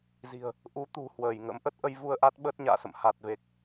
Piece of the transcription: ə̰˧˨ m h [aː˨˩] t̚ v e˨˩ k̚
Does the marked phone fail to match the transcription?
yes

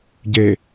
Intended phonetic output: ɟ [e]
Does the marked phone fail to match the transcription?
no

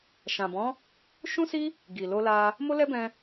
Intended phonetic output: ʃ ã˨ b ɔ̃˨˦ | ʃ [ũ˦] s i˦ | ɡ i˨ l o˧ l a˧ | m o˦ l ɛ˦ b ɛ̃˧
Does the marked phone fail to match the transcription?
no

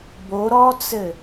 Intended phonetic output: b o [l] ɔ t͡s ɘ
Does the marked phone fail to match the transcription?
yes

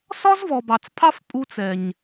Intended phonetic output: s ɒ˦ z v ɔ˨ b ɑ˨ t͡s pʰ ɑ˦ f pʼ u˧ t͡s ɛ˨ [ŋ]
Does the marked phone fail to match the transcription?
yes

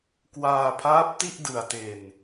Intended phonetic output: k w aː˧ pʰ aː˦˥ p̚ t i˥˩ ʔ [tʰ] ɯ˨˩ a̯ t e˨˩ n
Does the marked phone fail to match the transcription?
yes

